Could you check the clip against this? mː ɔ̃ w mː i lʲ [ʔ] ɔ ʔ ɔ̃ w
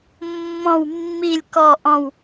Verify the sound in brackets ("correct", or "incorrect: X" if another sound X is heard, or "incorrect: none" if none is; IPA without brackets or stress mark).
incorrect: k